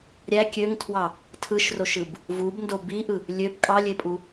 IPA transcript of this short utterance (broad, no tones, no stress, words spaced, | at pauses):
ɾʲæ kʲøŋtʰwɑ | tʰɯʃroʃɯb | vubndo biʔɯ | lʲøb kʼɑlʲepʼu